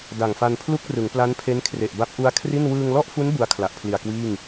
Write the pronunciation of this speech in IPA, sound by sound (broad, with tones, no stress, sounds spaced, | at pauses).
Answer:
d a˨˩ ŋ f a˧ n pʰ l u˥˩ k̚ r ɯ˩˦ ŋ p l a˦˥ n pʰ e˦˥ n kʰ r e˨˩ ʔ b a˦˥ p̚ ʔ u˦˥ a̯ kʰ r i˥˩ n w ɯː˧ ŋ l ɔ˥˩ ʔ f u˦˥ n b u˦˥ a̯ kʰ l a˨˩ ʔ pʰ l i˨˩ a̯ k w iː˥˩ ŋ